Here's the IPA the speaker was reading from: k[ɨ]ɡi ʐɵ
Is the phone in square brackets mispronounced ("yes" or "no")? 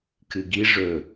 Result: no